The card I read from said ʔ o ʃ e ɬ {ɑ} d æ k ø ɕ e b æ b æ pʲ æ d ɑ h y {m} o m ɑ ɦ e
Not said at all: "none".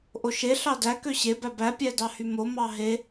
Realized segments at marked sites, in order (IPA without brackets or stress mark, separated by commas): ɑ, m